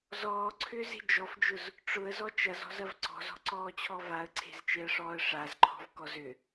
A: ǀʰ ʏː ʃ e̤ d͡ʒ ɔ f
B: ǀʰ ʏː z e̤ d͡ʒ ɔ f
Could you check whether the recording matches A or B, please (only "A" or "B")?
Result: B